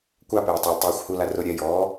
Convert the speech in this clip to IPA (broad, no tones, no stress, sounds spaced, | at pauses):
kʷ a p eː tˤ ʊː lʲ tˤ oː xʷ h u l a r ʊ ɾʲ ɛ j ɔː